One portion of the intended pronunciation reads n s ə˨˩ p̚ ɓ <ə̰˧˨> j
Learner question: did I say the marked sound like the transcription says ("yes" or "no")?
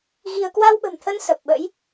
no